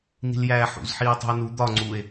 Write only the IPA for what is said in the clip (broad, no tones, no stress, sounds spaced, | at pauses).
n i̤ l j æː ħ ṵ z ħ iː tˤ ṳ o̯ n u d̪ ɒ ŋ͡ǀ u e̯